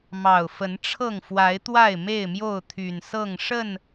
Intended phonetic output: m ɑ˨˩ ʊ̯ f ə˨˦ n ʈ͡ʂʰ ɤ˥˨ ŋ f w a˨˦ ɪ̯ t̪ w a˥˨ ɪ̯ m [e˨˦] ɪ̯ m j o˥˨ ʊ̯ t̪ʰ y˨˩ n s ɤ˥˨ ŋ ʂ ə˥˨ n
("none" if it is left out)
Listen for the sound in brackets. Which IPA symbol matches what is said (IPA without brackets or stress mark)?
e˥˨